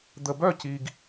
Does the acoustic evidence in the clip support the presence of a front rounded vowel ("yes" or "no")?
yes